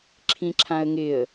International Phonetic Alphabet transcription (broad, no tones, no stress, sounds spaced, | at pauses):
ǁʰ ĩ ǁʰ ã ə̯ ŋ ɪ ə̯